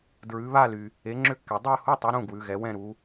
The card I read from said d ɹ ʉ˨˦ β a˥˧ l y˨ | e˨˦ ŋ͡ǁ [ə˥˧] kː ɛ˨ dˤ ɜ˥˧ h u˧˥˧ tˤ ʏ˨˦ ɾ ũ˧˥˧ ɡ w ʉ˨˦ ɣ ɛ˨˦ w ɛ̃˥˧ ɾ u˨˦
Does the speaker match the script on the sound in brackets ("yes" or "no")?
no